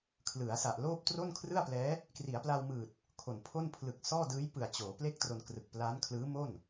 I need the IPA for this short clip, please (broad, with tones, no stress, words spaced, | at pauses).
kʰlɯ˩˦a̯sa˨˩ʔloː˥˩p̚ tro˥˩nkʰrɯ˥˩a̯plɛː˦˥ | kri˩˦a̯pla˧wmɯː˨˩t̚ | kʰo˨˩npʰo˥˩n pʰlɯ˨˩k̚ sɔː˥˩dɯː˦˥j pɯ˨˩a̯t͡ɕoː˩˦ ple˥˩k̚tro˧n krɯ˨˩k̚pla˦˥nkʰlɯː˦˥mo˥˩n